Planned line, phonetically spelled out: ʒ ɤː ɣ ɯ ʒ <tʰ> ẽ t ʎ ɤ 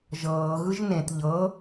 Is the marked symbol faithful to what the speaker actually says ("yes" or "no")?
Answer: no